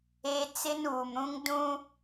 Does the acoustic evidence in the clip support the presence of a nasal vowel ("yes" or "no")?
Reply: yes